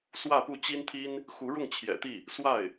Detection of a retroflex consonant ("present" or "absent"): present